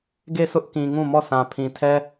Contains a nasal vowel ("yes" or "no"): yes